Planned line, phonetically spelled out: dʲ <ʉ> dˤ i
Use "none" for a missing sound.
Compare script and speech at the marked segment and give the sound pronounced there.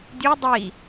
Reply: u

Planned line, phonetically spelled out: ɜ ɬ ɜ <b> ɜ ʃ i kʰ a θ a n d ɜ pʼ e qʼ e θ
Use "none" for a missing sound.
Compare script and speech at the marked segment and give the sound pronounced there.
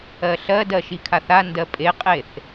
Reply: d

